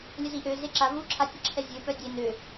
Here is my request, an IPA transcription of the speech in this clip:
lʲ ə z i ʔ ø z e ǁ a v u ǁʰ a tʲ ə ǁʰ ɛ zʲ ø p œ dʲ e n ø

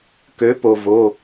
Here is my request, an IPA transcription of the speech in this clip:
k ø˩˥ p o˩ v o˩˧˩

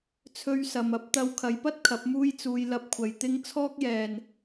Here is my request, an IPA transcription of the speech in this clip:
t͡sʰ ɵ˧ ɥ s ɐ˨ m ɐ˨˥ p̚ t̪ ɐ˧ w kʰ ɐ˨ j p ɐ˥ t̚ kʰ ɐ˨˥ p̚ m uː˥ j t͡s uː˧ j l ɐ˧ p̚ kʷʰ ɐ˨ j t̪ ɪ˥ ŋ t͡sʰ ɔː˥ k̚ j ɛː˨ n

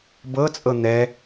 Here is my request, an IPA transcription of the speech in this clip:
b ɤ t͡sʼ ɤ n̪ ɛ

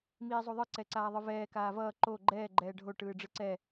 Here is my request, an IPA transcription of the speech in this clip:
m iː zˤ u ðˤ ɯ ǀ ɛ ǀ aː ðˤ ɯ v ɛː k aː v ʌː ǃ o ɡ͡ǃ ɛː ɡ͡ǃ ɛː ɖʱ o ʈ ɯː ɖ͡ʐ ɯ ǀ ɛ

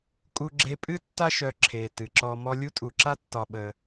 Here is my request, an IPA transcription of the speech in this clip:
kʼ u˨ ɡ͡ǁ e˨ pʼ ɨ˥ tː a˦ ʃ œ˨ ǁʰ e˩ t ɨ˩ ǁ ɔ˨ m ɔ˦ lʲ u˥ tʼ u˨ ǁ a˦ tː ɒ˨ ɓ ə˨

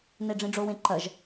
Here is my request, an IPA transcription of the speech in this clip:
n e ɖ͡ʐ ĩ ɖ͡ʐ o w ẽ ǃ ɐ ʒ

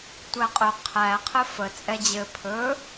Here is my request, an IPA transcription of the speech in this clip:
tʷ æ qʼ ɵ qʰ æ qʰ ɘ f ə t͡sʼ ɛ d͡ʑ ɘ pʰ ɵ

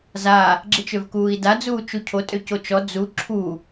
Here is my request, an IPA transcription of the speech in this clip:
z a | ɡ͡ǁ i t͡ʃ ø v k uː i̯ d a d͡z uː t͡ʃ u cʰ o tʼ ø c o t͡ʃ ɔ d͡z u ǁʰ u

